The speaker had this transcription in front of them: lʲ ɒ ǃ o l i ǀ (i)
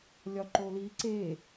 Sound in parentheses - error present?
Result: yes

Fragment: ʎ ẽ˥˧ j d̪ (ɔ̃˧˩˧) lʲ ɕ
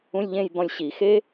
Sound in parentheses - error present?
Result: yes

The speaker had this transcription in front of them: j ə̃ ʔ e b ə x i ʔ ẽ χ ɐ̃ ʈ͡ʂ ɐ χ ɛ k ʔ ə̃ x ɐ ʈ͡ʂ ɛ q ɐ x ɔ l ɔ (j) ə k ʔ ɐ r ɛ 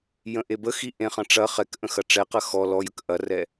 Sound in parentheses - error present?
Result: no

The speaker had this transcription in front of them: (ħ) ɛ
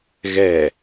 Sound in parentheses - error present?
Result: yes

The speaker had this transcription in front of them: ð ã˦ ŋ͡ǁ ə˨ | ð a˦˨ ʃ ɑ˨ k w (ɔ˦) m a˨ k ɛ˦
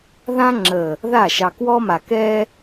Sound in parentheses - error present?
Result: no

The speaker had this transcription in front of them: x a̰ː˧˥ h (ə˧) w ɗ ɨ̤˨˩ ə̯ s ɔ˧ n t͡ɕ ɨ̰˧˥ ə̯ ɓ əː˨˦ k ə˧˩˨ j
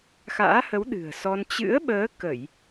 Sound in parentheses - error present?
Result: yes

